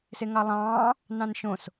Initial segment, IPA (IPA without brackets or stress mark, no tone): s